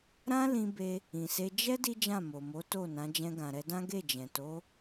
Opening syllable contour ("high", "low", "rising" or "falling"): high